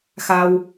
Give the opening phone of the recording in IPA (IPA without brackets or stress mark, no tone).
x